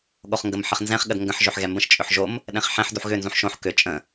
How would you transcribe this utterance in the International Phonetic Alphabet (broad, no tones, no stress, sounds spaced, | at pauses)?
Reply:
ɠ o χ ŋ ɡ ə m ħ ə χ n z ɛ̃ χ ɠ ə d ŋ ɡ ə̃ ħ ʒ ø ħ ɣ ɛ m b ə̃ ʃ t͡ʃʼ ʏ ħ ʒ o m | ɗ ɛ̃ χ ħ ɛ̃ ħ d u ħ ɣ ʏ n z ũ ħ ʃ õ ħ k ʏ t͡ʃʼ ə̃